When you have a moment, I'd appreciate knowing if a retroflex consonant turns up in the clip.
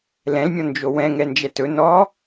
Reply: no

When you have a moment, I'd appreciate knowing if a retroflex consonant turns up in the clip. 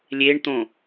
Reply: yes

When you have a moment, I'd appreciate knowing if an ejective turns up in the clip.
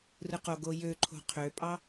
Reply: yes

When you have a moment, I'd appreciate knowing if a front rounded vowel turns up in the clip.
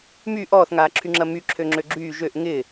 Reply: yes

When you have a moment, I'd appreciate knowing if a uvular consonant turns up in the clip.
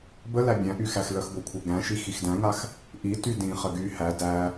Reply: yes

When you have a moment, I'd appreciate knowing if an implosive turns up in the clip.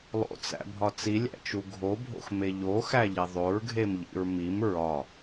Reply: no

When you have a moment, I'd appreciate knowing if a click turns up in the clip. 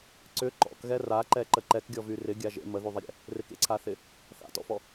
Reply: yes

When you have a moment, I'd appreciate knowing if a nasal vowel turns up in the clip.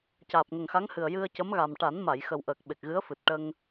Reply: no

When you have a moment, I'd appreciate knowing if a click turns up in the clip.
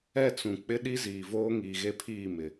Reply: no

